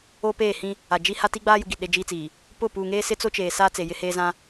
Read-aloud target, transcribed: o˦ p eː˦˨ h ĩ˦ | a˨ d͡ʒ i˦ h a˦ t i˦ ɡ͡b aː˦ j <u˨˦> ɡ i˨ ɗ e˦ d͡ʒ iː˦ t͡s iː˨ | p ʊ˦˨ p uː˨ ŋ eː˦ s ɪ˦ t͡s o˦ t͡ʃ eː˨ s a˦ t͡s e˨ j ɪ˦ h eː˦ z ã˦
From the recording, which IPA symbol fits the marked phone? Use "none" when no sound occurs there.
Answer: u˨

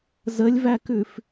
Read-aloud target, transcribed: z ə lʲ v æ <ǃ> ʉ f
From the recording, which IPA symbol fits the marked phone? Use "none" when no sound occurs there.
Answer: k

